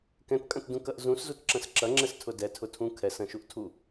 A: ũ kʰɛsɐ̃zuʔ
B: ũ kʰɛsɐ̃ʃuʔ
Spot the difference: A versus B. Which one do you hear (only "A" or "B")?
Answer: B